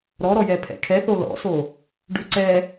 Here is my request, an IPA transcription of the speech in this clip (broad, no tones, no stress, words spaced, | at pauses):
ɾɔɾɔjɛ pʰɛ̰kʰɛθo lɔ̰so | ɖʉǀɛ